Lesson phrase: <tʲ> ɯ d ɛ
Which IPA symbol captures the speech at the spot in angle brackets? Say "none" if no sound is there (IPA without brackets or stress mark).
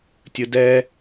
tʲ